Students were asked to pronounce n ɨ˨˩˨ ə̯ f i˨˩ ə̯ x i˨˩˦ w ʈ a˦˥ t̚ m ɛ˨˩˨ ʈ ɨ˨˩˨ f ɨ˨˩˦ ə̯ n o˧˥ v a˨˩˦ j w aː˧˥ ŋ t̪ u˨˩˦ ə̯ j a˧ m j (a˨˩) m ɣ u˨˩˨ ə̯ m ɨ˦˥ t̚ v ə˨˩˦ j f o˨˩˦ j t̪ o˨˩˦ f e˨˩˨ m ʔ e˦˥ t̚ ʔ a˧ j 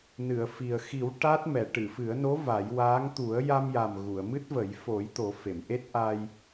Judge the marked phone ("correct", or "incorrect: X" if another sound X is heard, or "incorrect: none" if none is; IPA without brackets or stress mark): correct